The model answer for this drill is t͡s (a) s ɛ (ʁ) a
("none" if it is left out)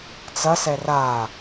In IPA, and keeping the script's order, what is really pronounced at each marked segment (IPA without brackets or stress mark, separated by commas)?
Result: ɐ, r